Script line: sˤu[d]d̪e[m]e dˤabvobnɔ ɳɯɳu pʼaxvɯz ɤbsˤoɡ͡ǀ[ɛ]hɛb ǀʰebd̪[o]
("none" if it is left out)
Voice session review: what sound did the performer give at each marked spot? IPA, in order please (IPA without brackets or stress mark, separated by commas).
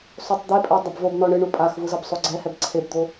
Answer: tˤ, pʼ, ɛ, o